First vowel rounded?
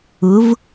yes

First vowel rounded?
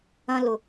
no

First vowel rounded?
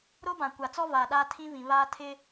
yes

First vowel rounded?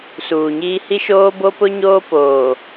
yes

